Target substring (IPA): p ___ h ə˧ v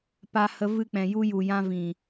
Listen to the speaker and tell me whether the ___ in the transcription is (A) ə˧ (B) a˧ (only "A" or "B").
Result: B